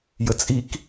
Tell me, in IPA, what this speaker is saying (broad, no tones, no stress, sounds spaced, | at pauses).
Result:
j ə t͡sʼ i k